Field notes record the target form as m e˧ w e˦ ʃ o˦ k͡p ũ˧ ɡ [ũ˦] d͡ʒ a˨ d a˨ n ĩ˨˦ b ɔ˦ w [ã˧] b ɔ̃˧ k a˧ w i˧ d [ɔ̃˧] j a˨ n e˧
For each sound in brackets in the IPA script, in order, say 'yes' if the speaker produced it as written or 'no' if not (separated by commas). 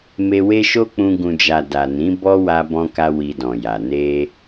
no, no, no